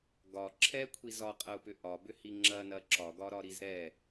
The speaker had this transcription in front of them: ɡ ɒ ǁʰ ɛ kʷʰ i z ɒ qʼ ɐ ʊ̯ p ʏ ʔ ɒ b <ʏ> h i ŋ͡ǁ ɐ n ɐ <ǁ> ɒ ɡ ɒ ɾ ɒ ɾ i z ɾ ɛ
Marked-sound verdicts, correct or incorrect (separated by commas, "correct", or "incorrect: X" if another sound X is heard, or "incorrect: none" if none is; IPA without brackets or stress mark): correct, correct